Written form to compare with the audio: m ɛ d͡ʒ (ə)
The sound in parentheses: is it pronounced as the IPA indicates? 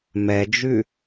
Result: no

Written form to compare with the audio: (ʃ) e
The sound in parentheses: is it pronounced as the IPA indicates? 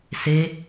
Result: no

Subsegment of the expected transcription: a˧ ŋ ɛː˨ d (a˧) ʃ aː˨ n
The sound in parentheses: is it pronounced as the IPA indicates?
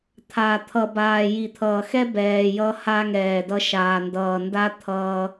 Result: no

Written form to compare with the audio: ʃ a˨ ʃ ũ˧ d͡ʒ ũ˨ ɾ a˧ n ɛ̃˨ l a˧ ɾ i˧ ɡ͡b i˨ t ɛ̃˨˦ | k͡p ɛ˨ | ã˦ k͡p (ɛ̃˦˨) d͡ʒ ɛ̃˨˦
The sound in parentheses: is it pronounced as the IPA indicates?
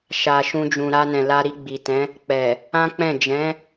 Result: yes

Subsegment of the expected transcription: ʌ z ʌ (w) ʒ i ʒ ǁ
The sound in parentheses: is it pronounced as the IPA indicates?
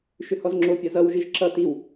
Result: yes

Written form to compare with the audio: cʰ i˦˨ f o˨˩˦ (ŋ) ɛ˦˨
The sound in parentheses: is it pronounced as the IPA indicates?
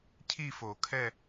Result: no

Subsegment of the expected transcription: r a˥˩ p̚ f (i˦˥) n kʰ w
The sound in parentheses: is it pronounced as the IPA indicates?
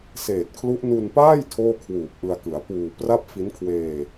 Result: yes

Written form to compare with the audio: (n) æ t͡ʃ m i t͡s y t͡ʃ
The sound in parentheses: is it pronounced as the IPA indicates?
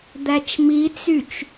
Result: no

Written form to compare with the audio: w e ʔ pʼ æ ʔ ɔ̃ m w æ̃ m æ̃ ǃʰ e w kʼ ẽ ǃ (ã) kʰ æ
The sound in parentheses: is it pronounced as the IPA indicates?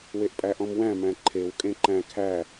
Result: no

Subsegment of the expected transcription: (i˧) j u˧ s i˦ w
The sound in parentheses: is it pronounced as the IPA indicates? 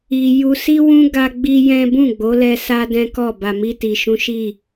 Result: yes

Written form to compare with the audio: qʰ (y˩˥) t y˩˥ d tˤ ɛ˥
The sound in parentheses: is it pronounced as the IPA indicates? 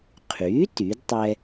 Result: yes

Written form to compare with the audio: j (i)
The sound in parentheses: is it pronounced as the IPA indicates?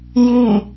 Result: yes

